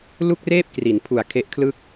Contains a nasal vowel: no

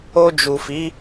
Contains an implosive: no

